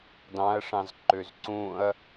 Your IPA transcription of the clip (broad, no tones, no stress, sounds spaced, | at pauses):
d ɑ̃ ɐ̯ ʂ ɑ̃ z ǃ ø z ǀ ũ ɐ̯